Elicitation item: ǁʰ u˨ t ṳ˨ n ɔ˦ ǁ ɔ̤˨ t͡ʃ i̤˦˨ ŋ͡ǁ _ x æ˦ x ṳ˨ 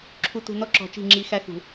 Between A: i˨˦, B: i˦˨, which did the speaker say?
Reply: A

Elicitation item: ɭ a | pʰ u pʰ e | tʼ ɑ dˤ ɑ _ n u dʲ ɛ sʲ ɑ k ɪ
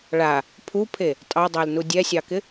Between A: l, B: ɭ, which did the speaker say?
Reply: A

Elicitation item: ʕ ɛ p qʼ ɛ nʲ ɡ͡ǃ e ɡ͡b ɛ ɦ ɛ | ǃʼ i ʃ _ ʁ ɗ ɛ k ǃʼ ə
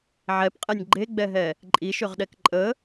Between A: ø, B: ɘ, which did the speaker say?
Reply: A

